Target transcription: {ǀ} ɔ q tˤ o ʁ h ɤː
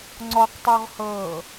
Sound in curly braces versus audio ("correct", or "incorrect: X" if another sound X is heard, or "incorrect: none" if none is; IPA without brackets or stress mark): incorrect: ŋ͡ǀ